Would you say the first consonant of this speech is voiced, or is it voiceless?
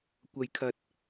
voiceless